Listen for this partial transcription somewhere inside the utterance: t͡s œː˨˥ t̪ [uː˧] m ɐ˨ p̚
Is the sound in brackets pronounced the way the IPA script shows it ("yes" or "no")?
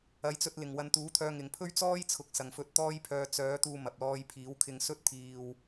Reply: yes